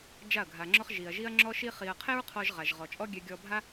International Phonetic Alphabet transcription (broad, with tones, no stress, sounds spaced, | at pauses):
d͡ʒ a˦˨ ɐ̯ ɡʱ a˧ ŋ͡ǁ ɔ˦ χ ʒ i˨ ɐ̯ ʒ i˦ ɐ̯ ŋ͡ǁ ɔ˦ ʃ i˦ χ i˧ ɐ̯ qʰ ɛ˦ ɹ qʰ ɔ˧ ʒ ʁ a˨ ʒ ʁ ɔ˨ t͡ʃʼ ɔ˦ ɡʲ ɛ˧ ɡʲ ɔ˧ bʱ a˦